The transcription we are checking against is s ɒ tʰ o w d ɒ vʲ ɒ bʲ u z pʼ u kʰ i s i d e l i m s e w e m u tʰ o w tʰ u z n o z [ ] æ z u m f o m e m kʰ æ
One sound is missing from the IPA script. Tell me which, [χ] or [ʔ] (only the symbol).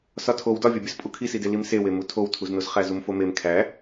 χ